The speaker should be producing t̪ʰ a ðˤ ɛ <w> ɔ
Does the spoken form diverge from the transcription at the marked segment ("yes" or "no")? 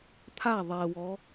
no